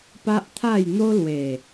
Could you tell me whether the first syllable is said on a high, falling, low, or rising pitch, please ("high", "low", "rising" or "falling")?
high